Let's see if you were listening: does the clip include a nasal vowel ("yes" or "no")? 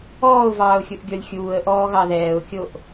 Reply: no